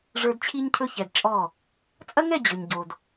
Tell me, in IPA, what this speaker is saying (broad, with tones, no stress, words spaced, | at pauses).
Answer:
ʐə˞˧dt͡ɕʰi˦ɲcʰɵ˦çɛ˨d t͡ʃʼɔ˦˨ | t͡sʼɐ˦ŋɛ˦˨ d͡ʑɵ˨ɲɟo˨d